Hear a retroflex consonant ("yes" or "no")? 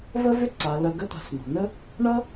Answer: yes